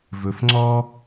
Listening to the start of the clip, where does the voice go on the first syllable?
low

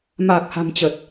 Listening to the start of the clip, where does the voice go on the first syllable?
low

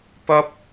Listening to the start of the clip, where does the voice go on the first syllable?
high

